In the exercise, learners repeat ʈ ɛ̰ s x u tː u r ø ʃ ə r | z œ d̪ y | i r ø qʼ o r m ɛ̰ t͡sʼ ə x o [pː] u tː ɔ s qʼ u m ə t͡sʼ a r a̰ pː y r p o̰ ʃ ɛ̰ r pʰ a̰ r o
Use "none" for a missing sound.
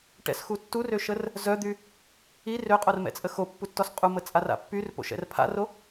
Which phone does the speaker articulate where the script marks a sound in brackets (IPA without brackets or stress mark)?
pː